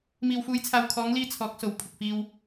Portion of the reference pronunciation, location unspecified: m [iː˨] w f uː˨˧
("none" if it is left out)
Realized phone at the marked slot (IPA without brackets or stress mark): iː˨